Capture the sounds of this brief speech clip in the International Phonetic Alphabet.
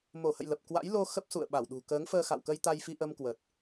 m o˧˩ h ə̰˧˨ j l ə˨˩ p̚ k w a̰˧˥ j l o˧ x ə˦˥ p̚ s ṵ˧˨ ə̯ ɓ a˧˩ w ɗ ṳ˨˩ k əː˨˦ ŋ f əː˧ x a̰˧˨ w k ə˧ j t̪ a˧ j f i˧ ʔ ə˧ m k w əː˨˩ t̚

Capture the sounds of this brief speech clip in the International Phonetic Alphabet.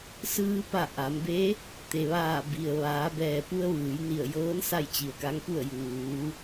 s ɯː˧ p a˧˩ ʔ a˩˧ m b e˧˥ | t̪ e˩ ʋ aː˧˩ b i˩ ə̯ ʋ aː˩˧ b ɛː˩ p u˧ ə̯ ʋ ɯː˩˧ j n i˧˩ ə̯ j ɤː˧˥ n s a˥˨ j t͡ɕ i˩ ə̯ k a˧˥ ŋ p u˥˨ ə̯ j uː˩˧

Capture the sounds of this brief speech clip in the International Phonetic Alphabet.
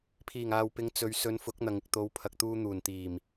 pʰ iː˨˩ ŋ aː˨ w p ɪ˨˧ ŋ t͡s ɵ˨˧ ɥ s ɵ˨˧ n f ʊ˨˥ k̚ n̪ ɐ˨ ŋ ɪ˨ k̚ t̪ o˨˧ w pʰ ɐ˨ k̚ t̪ uː˧ n̪ uː˨˩ n t̪ iː˨˩ m

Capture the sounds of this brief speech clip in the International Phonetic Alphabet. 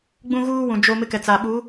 ɡ͡b ũ˦ ɣ uː˦ w ũ˨ d͡ʒ o˦ m ɪ˦ k ɛ˨ t͡s a˨ ɓ u˨˦

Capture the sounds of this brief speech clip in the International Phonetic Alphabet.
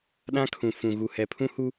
ɗ ã˦ kʰ ũ˨ f ũ˨ ɣ u˨ h ɛ˨ pʰ ũ˦ h u˦

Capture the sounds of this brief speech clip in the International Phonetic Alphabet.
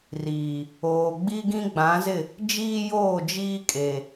r iː˨ | oː˨ ɡ͡b i˦ ɡ ĩ˦ ɡ͡b ã˨˦ z ɪ˦˨ | d͡ʒ iː˦ j oː˦˨ d͡ʒ iː˦ kʼ e˨

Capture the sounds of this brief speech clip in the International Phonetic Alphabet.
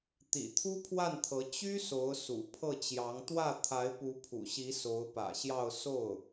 t̪ ḭ˨˩ t̪ʰ u˥ pʰ w a˥˩ n t̪ʰ ɤ˧˥ t͡ɕ y˥ s o˧˥ ʊ̯ s ṵ˨˩ pʰ ɤ˥˩ t͡ɕ j ɑ˧˥ ŋ t̪ w ä˥˩ t̪ʰ a˧˥ ɪ̯ p u˧˥ pʰ ṵ˨˩ ɕ i˧˥ s o˧˥ ʊ̯ p ä̰˨˩ ɕ j ɑ˥˧ ʊ̯ s o˥˩ ʊ̯

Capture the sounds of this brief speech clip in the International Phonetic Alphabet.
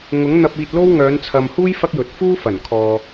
ŋ ʊ˨˥ ŋ n̪ ɐ˧ p̚ iː˧ t̚ l o˥ w ŋ œː˨˧ n t͡sʰ ɐ˨ m h uː˥ j f ɐ˥ k̚ j ɵ˨ t̚ f uː˥ f ɐ˨˩ n kʰ ɔː˨

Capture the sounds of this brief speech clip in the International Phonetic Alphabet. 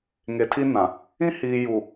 ŋ e˨ tʰ i˦ n ã˨ | ĩ˦ h iː˨ j u˨

